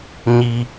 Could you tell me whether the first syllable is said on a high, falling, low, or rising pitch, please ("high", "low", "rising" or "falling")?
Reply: low